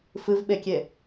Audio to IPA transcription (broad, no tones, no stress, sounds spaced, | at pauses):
f ɨ v ɓ e kʲ e